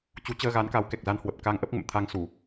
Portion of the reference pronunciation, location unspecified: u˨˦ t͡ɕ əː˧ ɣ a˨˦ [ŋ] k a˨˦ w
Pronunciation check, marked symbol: incorrect: n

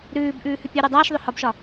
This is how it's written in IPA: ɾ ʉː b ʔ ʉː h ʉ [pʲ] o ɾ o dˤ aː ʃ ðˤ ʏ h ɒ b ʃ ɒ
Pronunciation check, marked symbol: correct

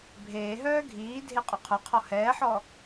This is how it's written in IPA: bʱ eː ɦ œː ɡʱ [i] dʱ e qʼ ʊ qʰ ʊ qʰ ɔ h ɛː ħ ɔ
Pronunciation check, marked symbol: incorrect: iː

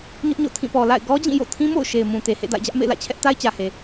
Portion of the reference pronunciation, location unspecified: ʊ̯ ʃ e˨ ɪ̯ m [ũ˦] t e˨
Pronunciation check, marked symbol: incorrect: ũ˨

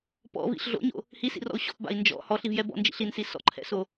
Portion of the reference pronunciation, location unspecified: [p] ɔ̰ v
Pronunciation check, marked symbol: correct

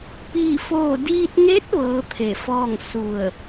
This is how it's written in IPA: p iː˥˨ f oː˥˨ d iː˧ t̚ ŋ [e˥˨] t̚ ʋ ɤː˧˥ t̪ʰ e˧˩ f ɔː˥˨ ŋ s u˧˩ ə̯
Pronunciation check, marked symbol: incorrect: e˧˥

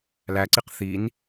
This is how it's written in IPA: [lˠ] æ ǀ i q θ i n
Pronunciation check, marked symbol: incorrect: l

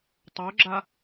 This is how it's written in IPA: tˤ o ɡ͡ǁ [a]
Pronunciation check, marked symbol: correct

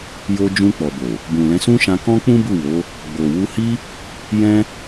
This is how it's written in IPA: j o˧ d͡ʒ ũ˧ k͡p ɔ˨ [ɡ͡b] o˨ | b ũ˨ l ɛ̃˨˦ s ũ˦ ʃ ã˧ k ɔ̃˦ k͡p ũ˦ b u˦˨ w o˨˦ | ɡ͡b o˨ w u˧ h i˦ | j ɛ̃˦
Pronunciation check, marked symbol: incorrect: b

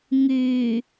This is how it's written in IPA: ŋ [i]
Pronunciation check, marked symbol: incorrect: y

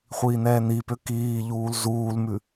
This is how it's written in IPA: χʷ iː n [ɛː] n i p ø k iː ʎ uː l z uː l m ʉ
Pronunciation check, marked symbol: correct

